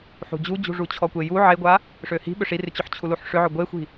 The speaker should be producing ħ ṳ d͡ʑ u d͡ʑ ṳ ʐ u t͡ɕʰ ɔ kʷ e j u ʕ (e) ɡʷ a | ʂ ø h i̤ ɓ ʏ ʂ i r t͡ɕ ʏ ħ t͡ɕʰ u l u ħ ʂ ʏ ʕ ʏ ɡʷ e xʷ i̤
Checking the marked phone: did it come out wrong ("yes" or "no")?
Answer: no